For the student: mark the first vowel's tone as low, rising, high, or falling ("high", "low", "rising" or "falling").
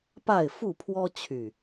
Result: falling